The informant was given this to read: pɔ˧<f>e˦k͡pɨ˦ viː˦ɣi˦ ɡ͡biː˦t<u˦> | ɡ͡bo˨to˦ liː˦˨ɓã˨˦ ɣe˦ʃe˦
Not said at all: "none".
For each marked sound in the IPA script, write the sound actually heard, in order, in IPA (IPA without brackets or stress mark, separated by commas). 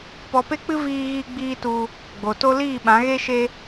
p, u˦